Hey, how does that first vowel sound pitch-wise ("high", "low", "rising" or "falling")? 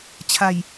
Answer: low